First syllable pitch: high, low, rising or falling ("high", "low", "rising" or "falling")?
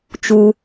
high